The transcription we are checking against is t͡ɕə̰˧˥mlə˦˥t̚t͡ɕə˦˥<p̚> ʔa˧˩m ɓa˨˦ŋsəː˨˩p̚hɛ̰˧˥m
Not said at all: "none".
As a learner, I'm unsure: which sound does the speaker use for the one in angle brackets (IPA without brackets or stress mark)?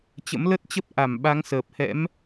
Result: p̚